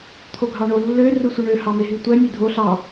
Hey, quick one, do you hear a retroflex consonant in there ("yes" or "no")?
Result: yes